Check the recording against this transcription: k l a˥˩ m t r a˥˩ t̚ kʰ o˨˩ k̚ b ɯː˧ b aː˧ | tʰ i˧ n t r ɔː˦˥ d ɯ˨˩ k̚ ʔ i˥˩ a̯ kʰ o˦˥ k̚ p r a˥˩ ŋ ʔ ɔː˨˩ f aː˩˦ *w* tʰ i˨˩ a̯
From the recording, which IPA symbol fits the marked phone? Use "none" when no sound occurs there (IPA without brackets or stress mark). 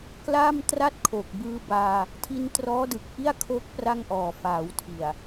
w